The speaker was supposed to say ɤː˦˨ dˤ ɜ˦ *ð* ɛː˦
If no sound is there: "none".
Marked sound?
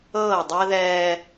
ð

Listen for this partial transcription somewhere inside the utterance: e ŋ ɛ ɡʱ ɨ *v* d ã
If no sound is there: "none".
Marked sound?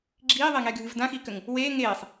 v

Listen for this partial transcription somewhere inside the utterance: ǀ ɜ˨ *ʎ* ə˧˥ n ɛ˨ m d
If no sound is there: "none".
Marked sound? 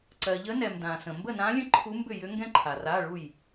ʎ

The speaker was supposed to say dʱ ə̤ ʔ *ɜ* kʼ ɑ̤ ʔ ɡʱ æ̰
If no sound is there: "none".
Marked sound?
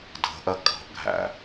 ɜ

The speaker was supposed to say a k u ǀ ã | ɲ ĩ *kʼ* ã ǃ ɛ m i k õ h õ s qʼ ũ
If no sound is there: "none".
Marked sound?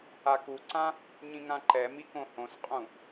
ŋ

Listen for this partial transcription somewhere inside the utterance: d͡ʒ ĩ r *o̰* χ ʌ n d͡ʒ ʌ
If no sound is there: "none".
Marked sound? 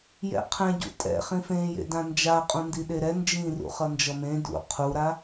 ṵ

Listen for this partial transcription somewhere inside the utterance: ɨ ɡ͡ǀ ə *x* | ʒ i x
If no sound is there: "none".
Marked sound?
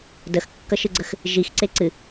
x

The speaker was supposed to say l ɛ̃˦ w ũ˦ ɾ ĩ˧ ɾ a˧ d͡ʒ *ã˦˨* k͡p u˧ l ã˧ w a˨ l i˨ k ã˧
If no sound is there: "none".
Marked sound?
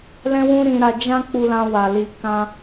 ã˦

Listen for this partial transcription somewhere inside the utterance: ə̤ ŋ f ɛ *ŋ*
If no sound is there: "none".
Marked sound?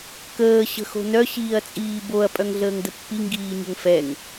ŋ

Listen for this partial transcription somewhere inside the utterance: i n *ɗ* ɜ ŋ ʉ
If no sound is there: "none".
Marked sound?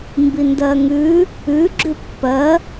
d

